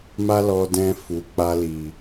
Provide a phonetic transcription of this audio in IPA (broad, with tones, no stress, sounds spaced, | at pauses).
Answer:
m a˦ l ɔ˧ d ɛ̃˧ f u˨ k͡p a˧ l i˨